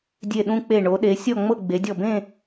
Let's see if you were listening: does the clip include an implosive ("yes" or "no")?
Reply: yes